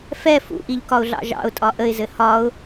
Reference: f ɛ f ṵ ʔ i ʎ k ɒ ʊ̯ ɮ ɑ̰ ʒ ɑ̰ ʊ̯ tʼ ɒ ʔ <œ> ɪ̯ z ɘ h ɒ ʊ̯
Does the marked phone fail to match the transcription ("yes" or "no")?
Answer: yes